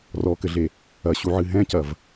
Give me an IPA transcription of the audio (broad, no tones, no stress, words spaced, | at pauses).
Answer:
rɔkɘɮe | ɐɕuʕɨ ɦɛ̃cɐv